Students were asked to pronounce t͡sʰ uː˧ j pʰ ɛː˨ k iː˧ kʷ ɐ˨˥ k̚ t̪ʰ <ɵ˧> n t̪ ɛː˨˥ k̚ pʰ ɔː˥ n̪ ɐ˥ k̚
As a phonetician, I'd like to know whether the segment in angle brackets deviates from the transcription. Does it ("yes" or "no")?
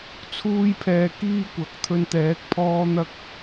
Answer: no